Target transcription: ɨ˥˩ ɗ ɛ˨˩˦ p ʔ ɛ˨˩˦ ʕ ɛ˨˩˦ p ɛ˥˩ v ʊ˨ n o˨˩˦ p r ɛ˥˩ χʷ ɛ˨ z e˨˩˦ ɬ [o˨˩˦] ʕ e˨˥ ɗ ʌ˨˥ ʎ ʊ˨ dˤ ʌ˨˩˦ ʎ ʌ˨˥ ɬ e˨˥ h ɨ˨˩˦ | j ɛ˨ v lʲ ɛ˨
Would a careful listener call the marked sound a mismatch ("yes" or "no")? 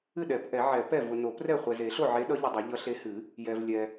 yes